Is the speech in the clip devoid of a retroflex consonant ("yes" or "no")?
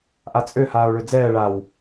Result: no